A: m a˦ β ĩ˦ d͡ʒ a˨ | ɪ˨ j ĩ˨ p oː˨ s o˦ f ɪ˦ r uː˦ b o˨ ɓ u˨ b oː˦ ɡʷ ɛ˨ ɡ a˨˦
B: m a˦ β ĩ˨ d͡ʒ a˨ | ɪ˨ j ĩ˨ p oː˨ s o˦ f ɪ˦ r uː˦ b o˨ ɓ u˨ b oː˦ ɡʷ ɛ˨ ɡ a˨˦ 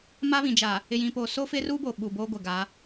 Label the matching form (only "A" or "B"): B